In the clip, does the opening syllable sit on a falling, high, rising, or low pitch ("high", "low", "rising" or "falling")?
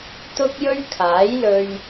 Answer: high